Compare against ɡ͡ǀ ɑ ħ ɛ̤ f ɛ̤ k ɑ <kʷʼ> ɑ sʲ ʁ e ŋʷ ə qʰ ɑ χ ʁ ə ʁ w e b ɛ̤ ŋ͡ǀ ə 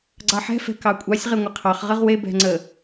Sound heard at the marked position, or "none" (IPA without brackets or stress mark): kʷʼ